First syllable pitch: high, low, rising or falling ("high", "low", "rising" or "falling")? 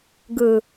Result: low